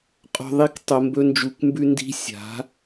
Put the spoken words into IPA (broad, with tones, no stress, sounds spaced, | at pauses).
qʼ o̤˦ ðˤ i˦ k tˤ o˧ m b ɵ˦ n d͡ʒ u˧ k m b ʉ˦ n d i̤˦ sʲ a̤˨˦